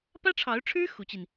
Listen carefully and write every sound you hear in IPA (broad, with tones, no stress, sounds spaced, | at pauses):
p ä˥ ʈ͡ʂʰ ɑ˧˥ ʊ̯ ʈ͡ʂʰ ɻ̩˥ x u˧˥ t͡ɕ i˧ n